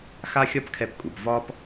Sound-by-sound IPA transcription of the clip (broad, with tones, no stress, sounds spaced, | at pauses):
x a˥ xʲ ɒ˥ p kʰ ɛ˧ p kʼ u˩ p v ɒ˥ p